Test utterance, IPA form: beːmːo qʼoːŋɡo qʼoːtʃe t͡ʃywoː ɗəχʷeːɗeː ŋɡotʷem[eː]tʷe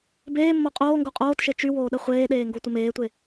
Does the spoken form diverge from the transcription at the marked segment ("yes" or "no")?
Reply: no